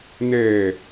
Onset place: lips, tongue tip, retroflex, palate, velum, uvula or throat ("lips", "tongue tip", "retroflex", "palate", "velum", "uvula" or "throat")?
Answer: tongue tip